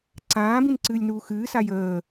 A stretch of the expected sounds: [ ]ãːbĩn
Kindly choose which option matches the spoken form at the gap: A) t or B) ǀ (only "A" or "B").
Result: B